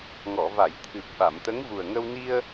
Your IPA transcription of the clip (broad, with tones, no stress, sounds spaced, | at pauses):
ŋ ɔ˨˩˨ v a˨˩˨ j t̪ʰ ɨ˨˩ p̚ ɓ a˨˩˨ m t̪ ə˧˥ ŋ v u˨˩ ə̯ ŋ ə˧ w n i˧ ə̯